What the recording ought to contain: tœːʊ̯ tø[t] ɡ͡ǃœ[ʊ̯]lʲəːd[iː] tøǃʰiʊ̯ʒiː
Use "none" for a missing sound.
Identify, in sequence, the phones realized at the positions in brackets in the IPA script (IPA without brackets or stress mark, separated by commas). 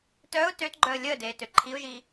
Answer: t, ə̯, eː